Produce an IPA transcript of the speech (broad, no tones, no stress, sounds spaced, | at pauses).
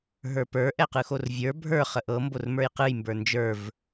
ɦ ə˞ p ə˞ ʔ ɛ q ɯ x o r vʲ ə˞ bʱ ə˞ χ ə ʔ ɤ m b o r m ə˞ j q ɯ j m b ə˞ n d͡ʒ ə˞ v